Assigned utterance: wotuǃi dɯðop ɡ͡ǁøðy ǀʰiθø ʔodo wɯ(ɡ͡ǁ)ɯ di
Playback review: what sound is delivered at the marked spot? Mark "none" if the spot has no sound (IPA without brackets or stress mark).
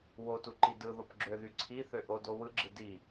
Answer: ɡ͡ǁ